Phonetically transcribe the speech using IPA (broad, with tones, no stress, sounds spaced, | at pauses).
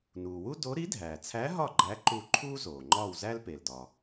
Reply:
n uː˩ w u˥ d o˧˥ ɾ i˧˥ dʱ æː˩ t͡sʰ æ˧˥ ɦ ɒ˦˨ ɡ͡ǃ æ˧˥ ǃ u˦˨ ǃʰ uː˥ z oː˩ ŋ͡ǃ ɒː˦˨ w z æ˥ l p e˩ l d ɒ˩